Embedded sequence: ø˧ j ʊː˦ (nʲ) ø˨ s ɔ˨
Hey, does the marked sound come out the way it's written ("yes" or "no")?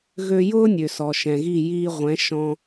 yes